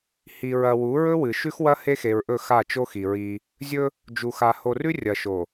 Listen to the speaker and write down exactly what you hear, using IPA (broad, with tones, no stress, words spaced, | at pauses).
hi˨ɹɐ˨ wu˨˦ɹɵ˦wɨ˨ ʃʉ˦xwɐ˦ he˦xe˨ɹʔɵ˦˨ xa˦˨ t͡ʃo˦xi˨ɹi˦ | zʲɵ˦ | d͡ʒu˨xa˨ ho˨rʉ˦ rʲɐ˨ʃo˨